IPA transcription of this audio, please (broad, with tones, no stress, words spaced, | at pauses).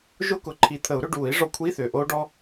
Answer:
ʒʊ˥˧kʊ˨˩˦ ǃʰi˨˩˦t̪ʰə˨˩˦u̯ɾʏ˥˧ɖuː˨˩˦i̯ ʐɔ˧kʷʰi˧˥˧θʏː˩ ʔoː˦˥ɖɔ˦˥